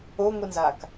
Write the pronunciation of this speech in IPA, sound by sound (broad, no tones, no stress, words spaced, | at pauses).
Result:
oŋʷinzak